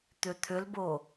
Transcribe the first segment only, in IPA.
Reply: t̪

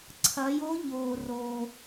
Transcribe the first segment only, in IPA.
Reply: ǀʰ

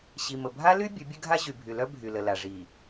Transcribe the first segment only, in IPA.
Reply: ɕ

